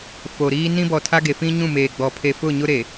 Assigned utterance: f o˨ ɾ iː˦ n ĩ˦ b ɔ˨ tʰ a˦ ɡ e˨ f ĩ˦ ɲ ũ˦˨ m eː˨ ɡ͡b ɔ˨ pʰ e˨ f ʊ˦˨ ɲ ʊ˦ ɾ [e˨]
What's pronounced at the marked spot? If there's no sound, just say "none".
e˨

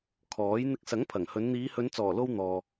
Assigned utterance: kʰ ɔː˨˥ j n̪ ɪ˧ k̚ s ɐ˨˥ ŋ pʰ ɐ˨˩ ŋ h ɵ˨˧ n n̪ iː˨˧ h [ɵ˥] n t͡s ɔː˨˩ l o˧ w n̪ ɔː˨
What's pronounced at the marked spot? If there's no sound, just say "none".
ɵ˨˧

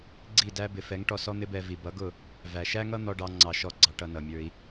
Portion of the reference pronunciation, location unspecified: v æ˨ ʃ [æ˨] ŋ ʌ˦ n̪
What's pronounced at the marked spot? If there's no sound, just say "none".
æ˦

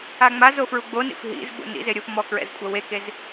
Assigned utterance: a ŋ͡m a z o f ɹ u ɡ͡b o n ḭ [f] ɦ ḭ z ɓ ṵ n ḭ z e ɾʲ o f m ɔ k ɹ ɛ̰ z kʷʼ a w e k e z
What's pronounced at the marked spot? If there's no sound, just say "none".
f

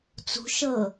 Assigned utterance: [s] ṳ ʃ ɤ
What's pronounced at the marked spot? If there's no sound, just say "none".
t͡s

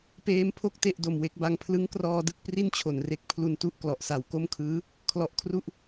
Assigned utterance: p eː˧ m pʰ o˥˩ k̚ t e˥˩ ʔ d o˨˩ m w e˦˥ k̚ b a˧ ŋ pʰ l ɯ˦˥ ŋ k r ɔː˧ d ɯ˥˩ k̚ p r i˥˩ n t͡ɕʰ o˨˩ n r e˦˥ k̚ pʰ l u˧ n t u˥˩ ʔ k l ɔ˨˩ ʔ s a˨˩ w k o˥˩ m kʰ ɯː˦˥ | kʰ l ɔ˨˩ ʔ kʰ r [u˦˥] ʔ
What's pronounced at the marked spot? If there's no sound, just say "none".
u˦˥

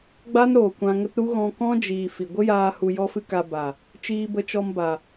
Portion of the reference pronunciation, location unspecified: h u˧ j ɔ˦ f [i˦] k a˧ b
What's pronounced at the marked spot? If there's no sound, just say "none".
ɨ˦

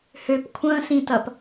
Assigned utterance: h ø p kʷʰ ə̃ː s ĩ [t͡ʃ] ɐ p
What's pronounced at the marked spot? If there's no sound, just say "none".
t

